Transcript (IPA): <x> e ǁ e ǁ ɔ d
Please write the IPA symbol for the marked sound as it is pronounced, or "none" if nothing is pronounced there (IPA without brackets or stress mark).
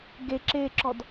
ɡ